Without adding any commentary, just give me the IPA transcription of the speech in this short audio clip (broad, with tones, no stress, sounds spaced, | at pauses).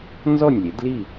n z ɔ˥˨ nʲ lʲ e˩˥ d l i˥˨